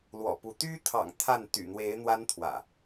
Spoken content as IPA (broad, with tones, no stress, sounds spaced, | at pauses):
l w ɔ̰˨˩ p u˨˦ t̪ y˦ t̪ʰ ɑ̰˨˩ ŋ t̪ʰ a˥˨ n t̪ y̰˨˩ n̪ w e˨˦ ɪ̯ n̪ w a˦ n t̪ʰ w ä̰˨˩